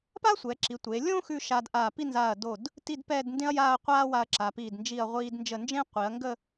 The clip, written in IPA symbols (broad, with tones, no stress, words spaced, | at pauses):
pa˥sʷɛ˩˧ǁi˩˧ tʷe˩˧lʲõ˥ xʉ˥˧ʃa˧dʔa˧˩ pi˥˧nzaː˧˩ɐ̯do˧˩d | ti˥˧dpɛː˥˧dndẽ˥ɐ̯jaː˥˧ɐ̯ qʷaː˥wa˧ɐ̯ ǁa˩˧piː˧˩dnd͡ʒi˧˩ɐ̯ ʁʷiː˧dnd͡ʒə˧˩ nd͡ʒẽ˥qʷi˩˧ɐ̯ŋɡə˥˧